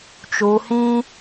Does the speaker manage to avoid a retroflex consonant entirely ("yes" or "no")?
yes